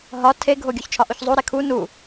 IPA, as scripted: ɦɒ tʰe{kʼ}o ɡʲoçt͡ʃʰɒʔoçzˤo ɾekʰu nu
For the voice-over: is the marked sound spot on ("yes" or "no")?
no